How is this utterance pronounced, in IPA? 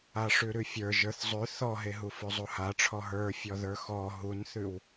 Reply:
a ʂ ʉ ɾ ʉ fʲ ə˞ ʒ ə˞ θ zˤ ʉ θ ɔ ɦ e ɦ u f ʉ zˤ u h a ʈ͡ʂʰ ɔ ɦ ə˞ fʲ ɔ ð ə˞ x ɔ ɦ u n θ ʉ w

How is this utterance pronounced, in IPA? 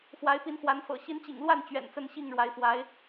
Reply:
x w a˨˦ ɪ̯ p i˨˦ n x w a˨˦ n f ɤ̰˨˩ ɕ i˨˦ n t͡ɕ ḭ˨˩ ŋ l w a˥˨ n t͡ɕ ɥ ɛ̰˨˩ n t͡s ə˥˨ n ɕ i˥˨ ŋ ɻ w a˨˦ ɪ̯ f w a˨˦ ɪ̯

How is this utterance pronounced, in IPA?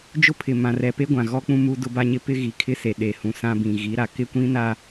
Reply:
d͡ʒ ʊ˦ pʰ ɪ˨ m ã˨ r ɛ˨ p e˦ ɡʷ ã˨ ɣ ɔ˦ k͡p ũ˦ m u˦ d ʊ˦ b a˦ ɲ ɪ˦ p ɪ˦ ɣ i˨ kʰ ɪ˦ s e˨ ɗ e˨ h ũ˨ s ã˦ b ĩ˨ ɣ i˨˦ ɾ a˨ k ɪ˦˨ kʷ ĩ˦ n a˦

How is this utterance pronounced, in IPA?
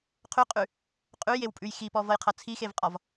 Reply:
qʰ ʉ qʼ ʉ | qʼ ʉ j e w pʼ ʉ j x i p ɔ v ɤ j qʰ ʌ t͡sʰ i x e v qʼ ɒ v

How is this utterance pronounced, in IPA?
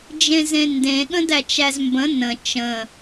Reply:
d͡ʒ ẽ z ẽ n d ẽ ɠ ə̃ d æ t͡ʃ æ z m b ə̃ n ə̃ t͡ʃ ə̃

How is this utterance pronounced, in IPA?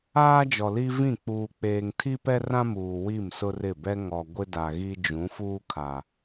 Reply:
aː˦ d͡ʒ ɔ˨ l i˦ v ĩ˦˨ k͡p uː˨ k͡p eː˨ ŋ tʰ i˦ p ɛ˦ r ã˦ m uː˨ w i˦˨ m s ʊ˦ r ɪ˦˨ b ɛ˦ ŋ ɔ˨ ɡʷ ɪ˦ d a˨ ɣ i˦ d͡ʒ ũ˨˦ f uː˦ kʰ a˨

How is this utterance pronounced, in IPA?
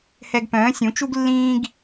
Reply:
h ɛ˧ ɡ p œ̃ː˨˦ sʲ ũ˨˦ t͡ʃ u˦ ɡ lː ĩː˦ ɡ

